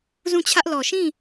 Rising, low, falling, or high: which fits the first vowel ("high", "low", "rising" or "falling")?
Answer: falling